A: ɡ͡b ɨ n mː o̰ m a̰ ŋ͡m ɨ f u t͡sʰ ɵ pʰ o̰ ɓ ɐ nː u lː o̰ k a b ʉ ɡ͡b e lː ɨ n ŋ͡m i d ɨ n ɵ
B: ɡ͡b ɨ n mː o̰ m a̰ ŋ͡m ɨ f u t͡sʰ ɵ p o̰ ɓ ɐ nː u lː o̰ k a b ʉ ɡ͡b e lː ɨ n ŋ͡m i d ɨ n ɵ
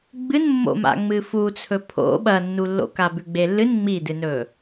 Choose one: A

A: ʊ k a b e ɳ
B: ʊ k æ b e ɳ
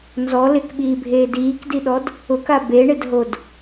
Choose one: A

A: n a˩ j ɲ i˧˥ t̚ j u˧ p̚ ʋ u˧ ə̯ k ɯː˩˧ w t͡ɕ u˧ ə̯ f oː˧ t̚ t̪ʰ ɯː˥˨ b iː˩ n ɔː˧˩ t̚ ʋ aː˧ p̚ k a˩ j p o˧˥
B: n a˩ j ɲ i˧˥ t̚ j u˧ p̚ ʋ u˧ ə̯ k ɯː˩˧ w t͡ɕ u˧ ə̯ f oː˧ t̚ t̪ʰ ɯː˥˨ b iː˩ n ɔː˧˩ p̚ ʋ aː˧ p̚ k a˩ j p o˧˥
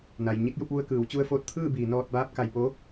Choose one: A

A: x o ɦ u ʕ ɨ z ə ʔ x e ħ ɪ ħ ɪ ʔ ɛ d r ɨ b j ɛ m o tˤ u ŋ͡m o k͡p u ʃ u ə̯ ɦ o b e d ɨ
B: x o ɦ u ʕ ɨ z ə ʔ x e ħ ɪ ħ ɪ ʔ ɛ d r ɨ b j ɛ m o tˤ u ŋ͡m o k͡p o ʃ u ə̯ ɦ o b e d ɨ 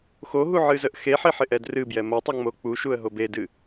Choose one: A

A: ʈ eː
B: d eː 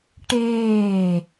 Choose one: A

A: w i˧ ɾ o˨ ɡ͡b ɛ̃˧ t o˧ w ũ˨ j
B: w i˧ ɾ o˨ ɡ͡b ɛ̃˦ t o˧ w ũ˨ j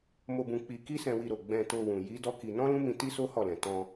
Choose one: A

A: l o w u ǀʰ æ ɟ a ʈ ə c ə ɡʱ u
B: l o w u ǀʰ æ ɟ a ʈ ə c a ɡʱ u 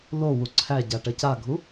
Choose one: B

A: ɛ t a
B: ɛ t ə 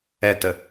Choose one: B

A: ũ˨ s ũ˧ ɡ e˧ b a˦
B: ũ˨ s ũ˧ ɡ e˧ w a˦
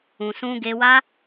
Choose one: B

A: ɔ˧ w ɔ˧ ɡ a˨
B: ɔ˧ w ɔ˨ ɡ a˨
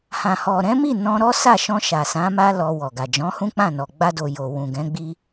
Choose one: B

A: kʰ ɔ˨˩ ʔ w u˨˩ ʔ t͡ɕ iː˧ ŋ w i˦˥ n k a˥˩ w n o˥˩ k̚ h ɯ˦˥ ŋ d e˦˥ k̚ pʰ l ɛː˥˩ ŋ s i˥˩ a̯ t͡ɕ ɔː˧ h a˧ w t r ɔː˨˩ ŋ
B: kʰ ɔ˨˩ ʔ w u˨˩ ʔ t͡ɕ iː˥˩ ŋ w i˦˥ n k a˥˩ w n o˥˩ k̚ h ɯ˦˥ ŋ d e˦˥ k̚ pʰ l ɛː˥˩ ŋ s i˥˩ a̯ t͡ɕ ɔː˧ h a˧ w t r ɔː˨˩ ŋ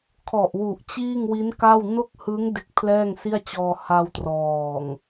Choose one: B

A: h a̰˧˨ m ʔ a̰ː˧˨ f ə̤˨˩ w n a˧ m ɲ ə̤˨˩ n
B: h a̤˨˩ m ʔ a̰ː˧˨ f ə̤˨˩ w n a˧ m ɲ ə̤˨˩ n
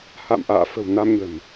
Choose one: A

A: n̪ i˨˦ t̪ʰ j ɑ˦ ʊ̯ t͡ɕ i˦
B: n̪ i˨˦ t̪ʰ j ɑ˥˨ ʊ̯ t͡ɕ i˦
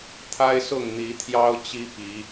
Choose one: A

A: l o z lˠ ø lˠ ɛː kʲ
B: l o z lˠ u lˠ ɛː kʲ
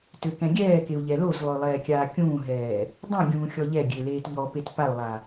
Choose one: A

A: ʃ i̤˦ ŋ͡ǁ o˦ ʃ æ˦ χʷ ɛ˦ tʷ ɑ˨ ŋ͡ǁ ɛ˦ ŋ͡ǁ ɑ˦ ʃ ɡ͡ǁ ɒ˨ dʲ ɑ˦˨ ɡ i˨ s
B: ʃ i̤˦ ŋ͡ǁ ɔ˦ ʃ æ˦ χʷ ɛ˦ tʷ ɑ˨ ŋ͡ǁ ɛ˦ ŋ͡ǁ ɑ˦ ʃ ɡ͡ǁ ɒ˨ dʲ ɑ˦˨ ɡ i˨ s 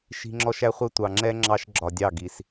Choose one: B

